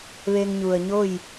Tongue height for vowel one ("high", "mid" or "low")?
mid